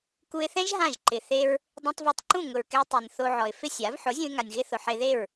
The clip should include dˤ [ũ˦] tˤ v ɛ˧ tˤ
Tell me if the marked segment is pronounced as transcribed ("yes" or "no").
no